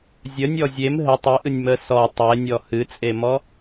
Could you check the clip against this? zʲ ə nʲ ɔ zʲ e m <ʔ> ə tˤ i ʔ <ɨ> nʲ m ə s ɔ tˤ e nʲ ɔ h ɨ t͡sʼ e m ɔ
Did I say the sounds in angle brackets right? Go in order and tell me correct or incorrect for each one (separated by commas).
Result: incorrect, correct